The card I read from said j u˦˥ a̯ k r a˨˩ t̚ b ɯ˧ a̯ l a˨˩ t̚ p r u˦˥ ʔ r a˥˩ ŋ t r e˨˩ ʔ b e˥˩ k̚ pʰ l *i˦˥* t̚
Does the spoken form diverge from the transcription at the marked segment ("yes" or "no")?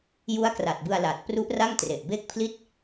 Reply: yes